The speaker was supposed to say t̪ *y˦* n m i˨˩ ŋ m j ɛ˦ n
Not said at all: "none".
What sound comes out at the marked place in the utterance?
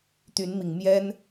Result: y˨˦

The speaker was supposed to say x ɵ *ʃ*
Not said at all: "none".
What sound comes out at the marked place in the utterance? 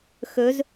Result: z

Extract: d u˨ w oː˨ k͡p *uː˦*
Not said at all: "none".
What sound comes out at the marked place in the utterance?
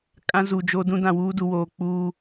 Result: uː˦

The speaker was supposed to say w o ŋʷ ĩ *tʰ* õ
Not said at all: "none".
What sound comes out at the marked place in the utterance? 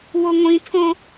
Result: tʰ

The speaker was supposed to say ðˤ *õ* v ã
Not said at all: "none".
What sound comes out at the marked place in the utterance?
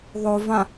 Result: o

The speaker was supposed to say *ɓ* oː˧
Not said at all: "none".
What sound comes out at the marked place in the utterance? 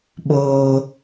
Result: ɓ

